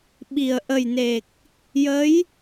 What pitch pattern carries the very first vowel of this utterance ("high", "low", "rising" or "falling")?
low